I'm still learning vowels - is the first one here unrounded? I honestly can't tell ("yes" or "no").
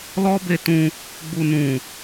no